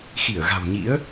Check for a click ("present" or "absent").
absent